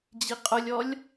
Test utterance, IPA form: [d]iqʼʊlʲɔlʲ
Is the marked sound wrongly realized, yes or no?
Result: yes